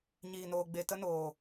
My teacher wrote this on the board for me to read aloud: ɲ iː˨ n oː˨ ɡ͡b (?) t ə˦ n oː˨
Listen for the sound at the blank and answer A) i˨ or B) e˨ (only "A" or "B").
B